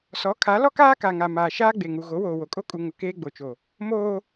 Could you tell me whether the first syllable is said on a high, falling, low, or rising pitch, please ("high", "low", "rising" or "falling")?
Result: rising